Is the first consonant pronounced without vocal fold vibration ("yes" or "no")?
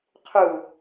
yes